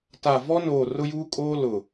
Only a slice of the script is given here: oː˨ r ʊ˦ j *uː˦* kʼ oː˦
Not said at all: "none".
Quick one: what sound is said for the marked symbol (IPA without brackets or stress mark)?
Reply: uː˦